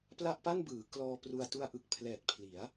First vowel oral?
yes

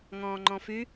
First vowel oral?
no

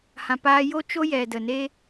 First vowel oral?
no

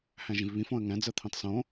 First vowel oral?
no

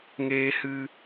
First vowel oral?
yes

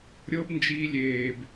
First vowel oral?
yes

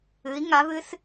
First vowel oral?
yes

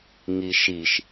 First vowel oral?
yes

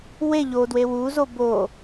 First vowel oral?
yes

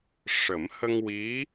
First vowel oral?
yes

